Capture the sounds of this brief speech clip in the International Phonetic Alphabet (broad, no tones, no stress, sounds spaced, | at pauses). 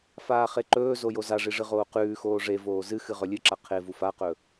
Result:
f aː χ e ǃ ɵː z o j o z a ʐ i ʐ ɨ ʁ oː q ʉː x oː ʐ e v oː z ɨ x ɨ ʁ ɵ lʲ ɨ ǁ a qʰ e v u f a q ɵ